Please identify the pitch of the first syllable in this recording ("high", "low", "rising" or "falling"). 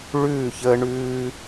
falling